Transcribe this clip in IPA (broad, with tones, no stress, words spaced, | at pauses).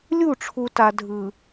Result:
lʲu˦˨ʈ͡ʂʰu˨ta˨ dʱɯ˨